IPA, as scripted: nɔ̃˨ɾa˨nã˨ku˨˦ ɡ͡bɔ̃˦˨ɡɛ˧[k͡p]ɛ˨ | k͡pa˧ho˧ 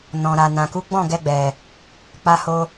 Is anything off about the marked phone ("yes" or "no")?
yes